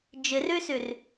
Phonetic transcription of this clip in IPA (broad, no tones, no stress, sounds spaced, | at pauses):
d͡ʒ ɨ r ʉ s ʉ r